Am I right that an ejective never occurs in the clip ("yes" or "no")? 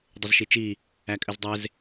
no